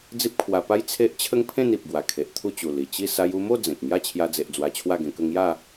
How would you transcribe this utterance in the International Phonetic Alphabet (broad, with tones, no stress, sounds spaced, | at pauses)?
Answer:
d͡z i˦ p̚ kʰ w a˧ p a˦ j t͡sʰ e˦ ʔ t͡ɕʰ ə˦ ŋ pʰ ẽ˥˧ n i˨ p̚ ɡ w a˨˩ kʰ e˨ ʔ t̪ʰ u˥˧ t͡ɕ u˨˩ l i˨˩ t͡ɕ i˥˧ s a˧ j u˧ m o˥˧ d͡z ẽ˨ k̚ ŋ j a˥˧ t͡ɕʰ j a˧ d͡z e˨ ʔ d͡z w a˧ t͡ɕʰ w a˥˧ ɡ ẽ˧ k ə˥˧ ŋ j a˥˧